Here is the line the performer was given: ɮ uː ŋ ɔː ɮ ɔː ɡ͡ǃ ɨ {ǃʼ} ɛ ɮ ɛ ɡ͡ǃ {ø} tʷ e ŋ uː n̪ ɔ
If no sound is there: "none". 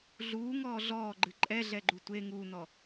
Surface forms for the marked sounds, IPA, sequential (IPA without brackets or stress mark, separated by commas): ǃʼ, u